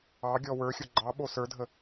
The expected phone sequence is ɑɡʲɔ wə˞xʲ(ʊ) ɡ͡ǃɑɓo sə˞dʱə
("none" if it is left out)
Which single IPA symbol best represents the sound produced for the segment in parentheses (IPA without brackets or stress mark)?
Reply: ʊ